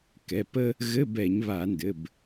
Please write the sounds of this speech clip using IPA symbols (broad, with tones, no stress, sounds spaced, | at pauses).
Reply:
k ɛ˩˧˩ p ə˥ | ɣ ɘ˧˥˧ b ɛ˧˩˧ ɲ β a˧˩˧ n d ɘ˩˧˩ b